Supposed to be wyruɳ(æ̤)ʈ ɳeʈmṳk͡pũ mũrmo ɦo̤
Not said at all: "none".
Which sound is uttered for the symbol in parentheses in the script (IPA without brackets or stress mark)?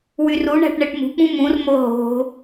æ̤